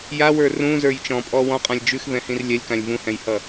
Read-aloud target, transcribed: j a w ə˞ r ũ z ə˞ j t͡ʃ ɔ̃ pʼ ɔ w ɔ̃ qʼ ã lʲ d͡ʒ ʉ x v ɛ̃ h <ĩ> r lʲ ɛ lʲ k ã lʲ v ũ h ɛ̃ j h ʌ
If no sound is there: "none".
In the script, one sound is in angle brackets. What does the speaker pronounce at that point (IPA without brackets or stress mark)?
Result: ĩ